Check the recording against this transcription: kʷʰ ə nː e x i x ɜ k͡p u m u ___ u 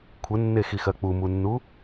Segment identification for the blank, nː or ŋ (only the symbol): nː